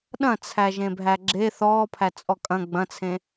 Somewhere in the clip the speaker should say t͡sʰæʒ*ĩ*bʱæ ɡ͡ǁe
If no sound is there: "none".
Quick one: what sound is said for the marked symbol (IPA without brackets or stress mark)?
ẽ